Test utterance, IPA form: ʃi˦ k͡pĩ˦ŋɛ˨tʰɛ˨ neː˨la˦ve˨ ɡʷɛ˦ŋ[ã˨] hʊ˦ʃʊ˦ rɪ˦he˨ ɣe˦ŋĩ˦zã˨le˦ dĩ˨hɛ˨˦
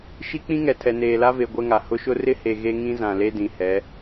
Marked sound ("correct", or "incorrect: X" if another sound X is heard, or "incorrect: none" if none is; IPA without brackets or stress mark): incorrect: a˨